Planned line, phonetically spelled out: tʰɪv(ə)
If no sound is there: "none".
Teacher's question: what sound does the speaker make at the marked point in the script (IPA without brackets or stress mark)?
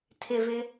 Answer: ɪ